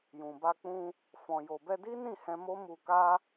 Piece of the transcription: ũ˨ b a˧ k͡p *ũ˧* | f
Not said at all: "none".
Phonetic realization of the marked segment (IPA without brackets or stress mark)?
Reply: ũ˧